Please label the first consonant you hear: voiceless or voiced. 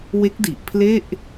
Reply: voiced